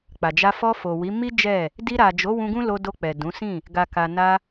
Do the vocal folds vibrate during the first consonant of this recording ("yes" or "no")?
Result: no